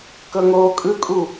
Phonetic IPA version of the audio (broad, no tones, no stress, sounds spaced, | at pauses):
k ɤ ŋ oː kʼ ɯ kʼ u